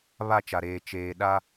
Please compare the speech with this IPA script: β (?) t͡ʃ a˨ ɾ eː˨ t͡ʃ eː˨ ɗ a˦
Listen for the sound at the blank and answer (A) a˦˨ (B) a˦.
A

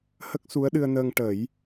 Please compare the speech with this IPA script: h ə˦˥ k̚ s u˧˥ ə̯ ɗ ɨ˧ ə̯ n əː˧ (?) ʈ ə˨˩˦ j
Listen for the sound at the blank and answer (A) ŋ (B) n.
A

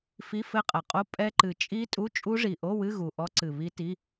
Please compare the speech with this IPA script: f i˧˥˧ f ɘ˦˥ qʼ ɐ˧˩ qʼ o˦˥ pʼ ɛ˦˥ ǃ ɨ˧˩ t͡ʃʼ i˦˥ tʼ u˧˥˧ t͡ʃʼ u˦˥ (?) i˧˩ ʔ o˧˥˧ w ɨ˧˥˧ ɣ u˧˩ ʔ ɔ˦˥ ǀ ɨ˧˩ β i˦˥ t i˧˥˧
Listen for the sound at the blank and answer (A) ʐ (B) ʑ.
A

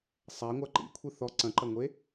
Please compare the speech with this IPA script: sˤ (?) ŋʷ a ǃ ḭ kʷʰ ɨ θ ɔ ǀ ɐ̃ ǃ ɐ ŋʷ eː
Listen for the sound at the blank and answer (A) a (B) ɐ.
A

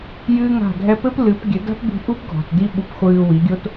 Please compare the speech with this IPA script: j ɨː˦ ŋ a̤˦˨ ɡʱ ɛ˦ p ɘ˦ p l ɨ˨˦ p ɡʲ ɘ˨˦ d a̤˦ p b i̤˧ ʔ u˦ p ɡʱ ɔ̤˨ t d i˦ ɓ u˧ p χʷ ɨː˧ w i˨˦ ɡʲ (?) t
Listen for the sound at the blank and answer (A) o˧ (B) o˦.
B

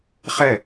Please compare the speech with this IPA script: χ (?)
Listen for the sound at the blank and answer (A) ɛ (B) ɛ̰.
A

